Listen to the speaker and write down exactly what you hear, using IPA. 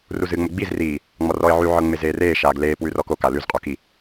ruzɨːŋ͡moɡ͡biz riː | ŋ͡mɔrɔɪ̯ʕy ʕɤŋ͡mezeːreː ʃaːɡleː pwʉrɔko kalʉz qʼoki

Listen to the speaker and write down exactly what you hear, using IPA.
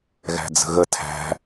ɣæ̤d͡zə̤ɣə tʰæ̤

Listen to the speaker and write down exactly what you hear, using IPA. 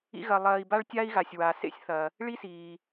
ḭ˥ɣɐ˧ lˠɐː˧i̯ba˥ɭtʲa˥i̯ɣa˩sʲ wa˩sḛ˥sʲ θɐ˩ | ɭi˥siː˩

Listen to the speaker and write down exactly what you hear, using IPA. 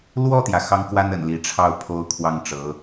lwɔ˥˩t̪jä˩ xɑ˥ŋkwa˥n ə̰˨˩n li˧˥ʈ͡ʂʰɑ˥˩ʊ̯ pʰo˥ʊ̯kʰwɑ˥˩ŋʈ͡ʂɤ˧˥

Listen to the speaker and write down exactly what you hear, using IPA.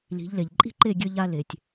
li̤˨˦ʎle˨ʎ ǃʼi̤˦ǃe˦˨ɡʲø˧ ʎa˧ le˨tʲ

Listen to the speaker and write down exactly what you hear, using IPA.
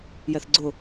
jɛθɡ͡ǀʊ

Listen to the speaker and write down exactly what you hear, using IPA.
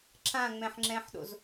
ǁãŋ͡mɛ̃ħŋ͡ǁɛ̃ːħɗo̰z

